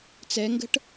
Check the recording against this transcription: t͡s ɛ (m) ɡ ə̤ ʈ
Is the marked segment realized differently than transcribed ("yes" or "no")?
yes